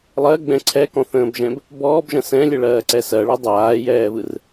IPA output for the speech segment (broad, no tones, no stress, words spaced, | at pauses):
lˠɜɡ͡bɛ̃ ǀʰɛkɔ̃θə̃ːbʒɛ̃b | bɔːbʒɐ̃ sɛ̃lʲɛɭɜːǀɛ sɜɭɛ dˤaːjɛːvɯr